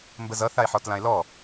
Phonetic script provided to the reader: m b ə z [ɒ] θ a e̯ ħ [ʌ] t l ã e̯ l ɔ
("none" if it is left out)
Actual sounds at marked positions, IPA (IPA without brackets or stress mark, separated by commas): ʌ, ɔ